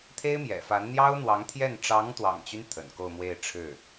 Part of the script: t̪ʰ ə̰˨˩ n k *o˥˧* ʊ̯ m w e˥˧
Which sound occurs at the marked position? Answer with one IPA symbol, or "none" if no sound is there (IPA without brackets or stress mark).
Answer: o˥˧